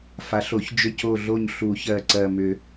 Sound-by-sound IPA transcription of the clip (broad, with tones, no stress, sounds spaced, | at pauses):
f a˨˩˦ ɬ o˨˩˦ ç d͡ʒ ʏ˦˨ c o˦˨ ɮ o˦˨ ɲ ɬ u˨˩˦ ç ɜ˨˩ ǀ ɜ˨˩ m ʏ˨˩˦